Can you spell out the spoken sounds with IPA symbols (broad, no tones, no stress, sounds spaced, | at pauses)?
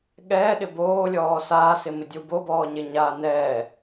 ɠ ɛ ɗ ɪ b oː lʲ ɔː s aː s ɪ m ɪ dʲ u b o b ɔː ɲ ɪ ɲ aː n ɛː